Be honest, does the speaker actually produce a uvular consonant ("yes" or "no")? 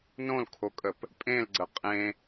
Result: yes